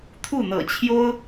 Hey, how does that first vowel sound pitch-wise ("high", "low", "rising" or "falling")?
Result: falling